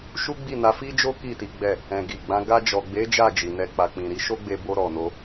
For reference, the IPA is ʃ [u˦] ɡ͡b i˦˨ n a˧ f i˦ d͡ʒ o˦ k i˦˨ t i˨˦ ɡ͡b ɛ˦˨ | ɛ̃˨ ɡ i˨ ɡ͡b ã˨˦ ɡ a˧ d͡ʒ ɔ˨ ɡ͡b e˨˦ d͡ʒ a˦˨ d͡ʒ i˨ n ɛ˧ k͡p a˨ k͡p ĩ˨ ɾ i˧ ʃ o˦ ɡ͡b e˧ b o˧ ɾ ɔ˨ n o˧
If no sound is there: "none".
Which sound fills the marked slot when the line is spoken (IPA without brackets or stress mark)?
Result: u˦